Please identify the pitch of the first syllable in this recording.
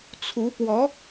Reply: rising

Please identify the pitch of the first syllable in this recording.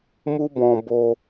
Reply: high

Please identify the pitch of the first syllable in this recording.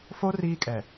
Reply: high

